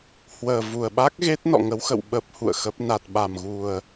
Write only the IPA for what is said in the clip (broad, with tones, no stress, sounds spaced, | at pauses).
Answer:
h w əː˨˩ v u˨˩ ə̯ ɓ a˦˥ k̚ ɣ e˦˥ t̚ n ɔ̰˧˨ ŋ ə˨˦ w x ə̰˧˨ w ɓ ə˦˥ p̚ h ṵ˧˨ ə̯ x ə˦˥ p̚ n a˨˩ t̚ ɓ a˨˩ m ɣ u˨˩ ə̯